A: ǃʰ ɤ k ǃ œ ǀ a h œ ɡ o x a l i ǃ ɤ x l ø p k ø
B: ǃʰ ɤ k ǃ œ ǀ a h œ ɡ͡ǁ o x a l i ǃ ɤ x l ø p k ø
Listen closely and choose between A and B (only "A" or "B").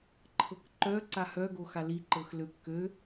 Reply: A